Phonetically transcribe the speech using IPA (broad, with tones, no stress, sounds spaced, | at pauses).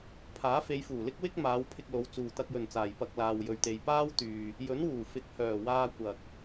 pʰ aː˨˥ f e˨˧ j f uː˨˩ l ɪ˥ k̚ w ɪ˥ k̚ m aː˨˧ w pʰ ɪ˧ k̚ l o˨˧ w t͡s uː˨ t̪ ɐ˧ k̚ j ɵ˨ n t͡s aː˨ j p ɐ˧ k̚ l aː˧ w j ɵ˧ ɥ t̪ e˧ j p aː˥ w t̪ yː˧ | j ɵ˨˥ n w uː˨˩ f ɪ˨ k̚ h œː˨˩ w aː˧ kʷ ɐ˨ k̚